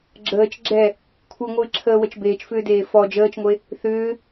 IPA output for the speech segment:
ɡ͡ǁəːt͡ʃ ɡ͡ǁɛ | kʷʰɨŋʷɨːǁʰəːwət͡ʃ beːt͡ʃfʏːdeː fɔ d͡ʒəːt͡ʃŋʷe | θʏː

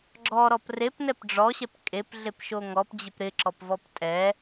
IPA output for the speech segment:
ɡ͡ǁɔɾɔp repnɛp ɖ͡ʐɔɕɛp kʼepɮepʃo ŋɔpd͡ʑɪp ɾɪǁɔpvɔp tʼɛ

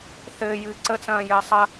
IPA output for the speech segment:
θɘːjɨː ǀət͡sɐ̃ːjɘː sˤɐ

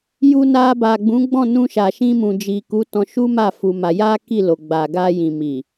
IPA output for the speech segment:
ju˧na˧ ba˨ɡ͡bũ˨˦ɡ͡bɔ̃˦˨ nũ˧ʃa˨ʃĩ˧mũ˨ d͡ʒi˨ku˨˦ tɔ̃˧ ʃu˦ma˦˨ fu˧ma˧ ja˦ ki˦˨lo˨ ɡ͡ba˨ ɡa˧jĩ˨mi˨

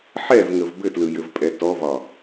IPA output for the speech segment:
ħɛvŋəv bɘtlɯjɘvpʼɛ tɔvɒ

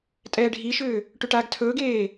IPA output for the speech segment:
tʼɛːɖʱiʃʏː | ʈʏʈaːɡtʰɵːɡeː

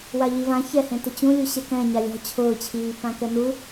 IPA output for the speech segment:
waʎivã çɛhẽtʊ t͡ɕũlʲuɕɛ kɛ̃ ɲalʲɔ̤ t͡ɕʰʊːt͡ɕʰiː pãkɛnu

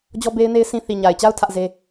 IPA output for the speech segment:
d͡ʑɔ˦be˦ɪ̯ne˦ɪ̯ sʰĩ˦ θi˨ɲa˨ɪ̯t͡ɕa˦ʊ̯ tʰä˦ʔze˦

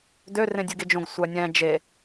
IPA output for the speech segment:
dørẽ dʲɯɡed͡ʒõɡ sʷænʲæ̃ d͡ʒe

